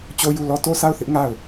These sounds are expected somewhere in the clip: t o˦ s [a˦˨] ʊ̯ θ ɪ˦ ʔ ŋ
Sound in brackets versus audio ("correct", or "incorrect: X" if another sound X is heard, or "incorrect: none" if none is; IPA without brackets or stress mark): correct